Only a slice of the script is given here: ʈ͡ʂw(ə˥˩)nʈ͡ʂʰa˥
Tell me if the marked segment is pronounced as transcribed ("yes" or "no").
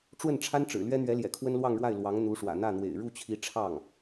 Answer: yes